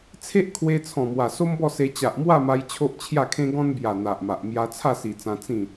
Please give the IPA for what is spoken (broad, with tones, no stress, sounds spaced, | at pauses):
t͡sʰ e˦ ʔ kʰ w e˧ t͡sʰ ɔ̃˨˩ m w a˨˩ s o˦ m b ɔ˥˧ s e˧ t͡ɕ a˨ ʔ m w a˥˧ m a˧ j t͡ɕʰ o˦ ʔ t͡ɕʰ j a˥˧ kʰ ẽ˦ ɡ ɔ̃˦ n b j a˨˩ n̪ a˨ ʔ m a˨ ʔ m j a˧ t͡sʰ a˥˧ s i˨˩ t͡s ã˧ t͡s ĩ˥˧